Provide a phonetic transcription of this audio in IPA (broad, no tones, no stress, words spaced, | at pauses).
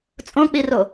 t͡sʼõk͡piro